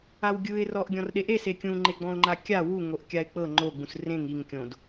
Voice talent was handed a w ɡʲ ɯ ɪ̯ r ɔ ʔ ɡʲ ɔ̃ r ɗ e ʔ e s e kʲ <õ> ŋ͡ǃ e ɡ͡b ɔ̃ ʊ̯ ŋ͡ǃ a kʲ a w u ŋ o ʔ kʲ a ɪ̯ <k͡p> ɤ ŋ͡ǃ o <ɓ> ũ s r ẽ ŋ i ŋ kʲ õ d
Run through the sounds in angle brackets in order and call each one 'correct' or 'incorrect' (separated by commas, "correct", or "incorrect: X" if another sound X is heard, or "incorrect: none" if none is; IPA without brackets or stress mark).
incorrect: ũ, correct, incorrect: ɡ͡b